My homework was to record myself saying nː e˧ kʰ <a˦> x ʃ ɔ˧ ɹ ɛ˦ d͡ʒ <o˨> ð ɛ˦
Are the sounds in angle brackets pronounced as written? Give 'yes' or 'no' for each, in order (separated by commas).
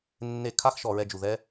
yes, no